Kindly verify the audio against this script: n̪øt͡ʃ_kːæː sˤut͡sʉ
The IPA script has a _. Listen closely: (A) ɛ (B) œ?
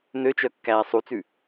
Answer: B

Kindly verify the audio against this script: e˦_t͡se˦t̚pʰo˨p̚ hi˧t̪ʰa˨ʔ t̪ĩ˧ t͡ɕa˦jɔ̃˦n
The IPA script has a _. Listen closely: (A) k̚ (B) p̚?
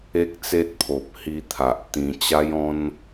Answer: A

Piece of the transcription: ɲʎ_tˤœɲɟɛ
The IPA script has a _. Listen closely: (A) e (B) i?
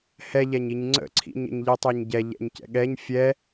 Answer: B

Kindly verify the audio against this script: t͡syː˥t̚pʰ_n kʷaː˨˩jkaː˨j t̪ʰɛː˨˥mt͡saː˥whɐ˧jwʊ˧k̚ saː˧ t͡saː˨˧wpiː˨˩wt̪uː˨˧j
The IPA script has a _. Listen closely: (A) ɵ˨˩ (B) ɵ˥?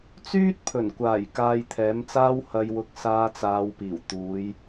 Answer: A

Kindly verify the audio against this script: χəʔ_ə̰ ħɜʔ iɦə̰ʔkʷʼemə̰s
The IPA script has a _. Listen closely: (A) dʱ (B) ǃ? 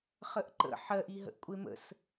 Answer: B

